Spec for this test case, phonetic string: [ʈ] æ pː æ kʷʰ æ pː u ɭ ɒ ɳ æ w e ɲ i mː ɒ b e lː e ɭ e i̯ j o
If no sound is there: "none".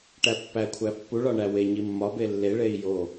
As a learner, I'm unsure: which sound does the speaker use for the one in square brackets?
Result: ʈ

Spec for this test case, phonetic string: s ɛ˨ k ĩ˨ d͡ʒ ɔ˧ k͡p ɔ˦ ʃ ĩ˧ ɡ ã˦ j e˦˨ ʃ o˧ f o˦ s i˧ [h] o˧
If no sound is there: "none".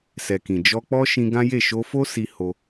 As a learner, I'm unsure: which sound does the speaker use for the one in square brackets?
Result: h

